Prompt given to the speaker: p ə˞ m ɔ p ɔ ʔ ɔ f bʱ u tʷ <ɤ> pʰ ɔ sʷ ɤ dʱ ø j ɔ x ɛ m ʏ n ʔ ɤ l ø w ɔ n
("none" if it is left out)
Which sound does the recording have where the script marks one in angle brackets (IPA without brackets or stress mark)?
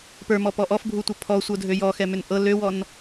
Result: ɤ